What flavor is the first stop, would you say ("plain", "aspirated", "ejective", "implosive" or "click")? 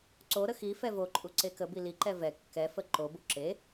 click